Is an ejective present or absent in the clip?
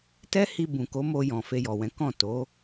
absent